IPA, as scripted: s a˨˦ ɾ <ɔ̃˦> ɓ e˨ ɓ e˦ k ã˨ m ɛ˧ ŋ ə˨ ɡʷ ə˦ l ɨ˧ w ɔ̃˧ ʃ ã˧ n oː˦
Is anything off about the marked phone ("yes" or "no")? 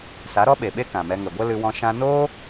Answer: yes